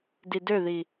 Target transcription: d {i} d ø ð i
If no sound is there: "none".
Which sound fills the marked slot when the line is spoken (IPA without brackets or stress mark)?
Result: i